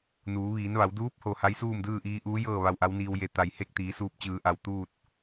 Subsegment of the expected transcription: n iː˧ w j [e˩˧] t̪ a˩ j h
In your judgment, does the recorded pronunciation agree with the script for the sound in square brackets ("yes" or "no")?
yes